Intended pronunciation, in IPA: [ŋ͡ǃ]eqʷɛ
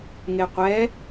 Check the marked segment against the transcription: incorrect: ŋ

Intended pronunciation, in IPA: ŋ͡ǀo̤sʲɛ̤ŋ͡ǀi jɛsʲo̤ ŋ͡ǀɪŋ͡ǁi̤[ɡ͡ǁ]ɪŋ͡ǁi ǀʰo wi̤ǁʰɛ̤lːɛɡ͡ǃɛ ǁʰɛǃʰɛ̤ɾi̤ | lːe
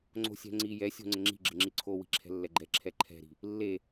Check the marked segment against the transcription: correct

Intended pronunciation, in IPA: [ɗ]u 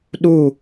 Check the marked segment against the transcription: correct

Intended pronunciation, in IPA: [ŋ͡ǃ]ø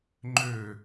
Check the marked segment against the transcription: correct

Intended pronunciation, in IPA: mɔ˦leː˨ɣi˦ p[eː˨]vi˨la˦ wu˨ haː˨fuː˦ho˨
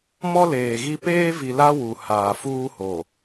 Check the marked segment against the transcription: incorrect: eː˦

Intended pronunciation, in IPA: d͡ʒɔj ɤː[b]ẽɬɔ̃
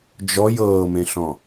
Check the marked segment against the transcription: incorrect: m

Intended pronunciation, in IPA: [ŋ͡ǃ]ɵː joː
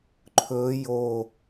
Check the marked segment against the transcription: incorrect: ǃʰ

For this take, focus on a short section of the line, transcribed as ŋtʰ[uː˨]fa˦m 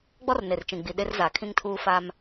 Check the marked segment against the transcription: incorrect: uː˦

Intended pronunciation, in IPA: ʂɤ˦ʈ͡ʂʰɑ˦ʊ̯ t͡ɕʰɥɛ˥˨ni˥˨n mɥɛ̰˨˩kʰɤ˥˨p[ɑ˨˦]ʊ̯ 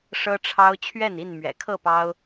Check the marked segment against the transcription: incorrect: ɑ˦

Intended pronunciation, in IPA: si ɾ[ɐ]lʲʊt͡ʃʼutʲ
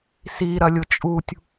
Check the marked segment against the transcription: correct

